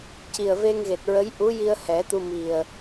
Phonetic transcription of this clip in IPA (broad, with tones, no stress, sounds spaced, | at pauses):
c i˨˩ ə̯ v e˧ ŋ ɣ e˨˩ t̚ ɹ ə˧˥ j ʔ u˧˥ j i˧ ə̯ h ɛ˨˩˦ t̪ u˧ m i˨˩ ə̯